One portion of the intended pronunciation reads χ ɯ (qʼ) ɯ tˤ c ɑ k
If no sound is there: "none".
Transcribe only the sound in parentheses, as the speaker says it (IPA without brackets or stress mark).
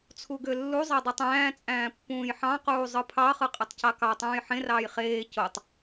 qʼ